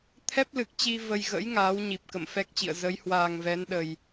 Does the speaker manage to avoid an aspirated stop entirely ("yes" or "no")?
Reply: no